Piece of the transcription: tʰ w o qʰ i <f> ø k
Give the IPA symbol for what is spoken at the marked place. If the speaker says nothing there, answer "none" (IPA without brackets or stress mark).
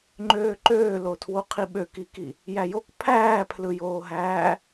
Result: ɓ